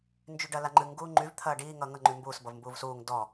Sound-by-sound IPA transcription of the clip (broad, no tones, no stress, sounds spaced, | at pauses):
n d͡ʒ y ɖ ɐ l a ŋ͡ǃ ɨ ŋ ɡ uː ŋ͡ǃ y v t̪ʰ ɐː ɖ iː ŋ ʌː ŋ ʌ ŋ͡ǃ y m b uː s b ʌ v m b uː v s uː ŋ d ɔ